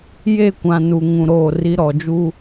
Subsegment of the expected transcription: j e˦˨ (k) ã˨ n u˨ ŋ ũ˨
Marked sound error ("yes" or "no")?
yes